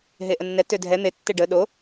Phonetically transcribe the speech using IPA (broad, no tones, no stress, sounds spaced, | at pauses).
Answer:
ɦ e ʔ ə nː ɛ t ø dʱ ɛ n̪ e tː e ɖ ə ɗ o